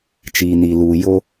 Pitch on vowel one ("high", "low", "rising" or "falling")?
low